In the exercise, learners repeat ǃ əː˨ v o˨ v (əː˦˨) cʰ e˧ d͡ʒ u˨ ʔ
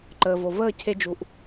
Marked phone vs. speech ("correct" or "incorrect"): correct